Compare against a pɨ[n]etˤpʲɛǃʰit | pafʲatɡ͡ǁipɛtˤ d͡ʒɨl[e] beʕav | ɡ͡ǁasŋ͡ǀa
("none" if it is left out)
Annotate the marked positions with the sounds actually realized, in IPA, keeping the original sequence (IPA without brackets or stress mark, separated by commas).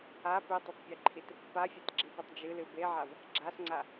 tˤ, ɨ